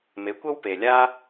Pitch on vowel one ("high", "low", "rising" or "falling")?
rising